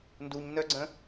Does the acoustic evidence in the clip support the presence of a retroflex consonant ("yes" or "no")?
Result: no